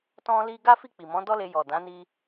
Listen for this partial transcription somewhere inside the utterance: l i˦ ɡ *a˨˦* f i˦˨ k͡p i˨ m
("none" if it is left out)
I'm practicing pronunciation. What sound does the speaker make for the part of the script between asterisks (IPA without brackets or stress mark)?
a˦